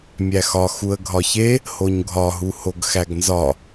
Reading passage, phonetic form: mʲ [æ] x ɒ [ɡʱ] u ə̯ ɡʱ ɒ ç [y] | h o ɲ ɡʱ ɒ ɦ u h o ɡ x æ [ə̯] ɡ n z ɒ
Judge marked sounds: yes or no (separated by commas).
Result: yes, no, no, no